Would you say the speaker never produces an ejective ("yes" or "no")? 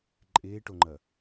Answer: no